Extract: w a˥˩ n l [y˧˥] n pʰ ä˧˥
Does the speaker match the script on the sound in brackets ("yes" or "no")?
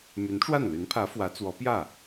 yes